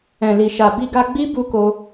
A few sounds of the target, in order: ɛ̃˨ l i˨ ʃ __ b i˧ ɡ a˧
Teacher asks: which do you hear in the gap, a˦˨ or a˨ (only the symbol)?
a˨